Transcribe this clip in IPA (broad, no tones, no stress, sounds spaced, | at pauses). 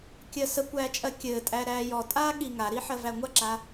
kʲ ɜ s ə kʷ æː t͡ʃʼ ɜ kʲ ɘː tʼ æ ɾ æː j ɔ tʼ aː ɠ i ŋ a ɾ i ħ ɜ v æ ŋʷ a ǁ a